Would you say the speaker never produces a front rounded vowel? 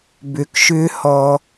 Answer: no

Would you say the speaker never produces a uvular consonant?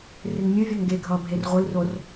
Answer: no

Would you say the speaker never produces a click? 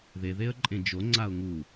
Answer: no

